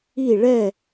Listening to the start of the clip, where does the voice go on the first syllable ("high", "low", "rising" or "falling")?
falling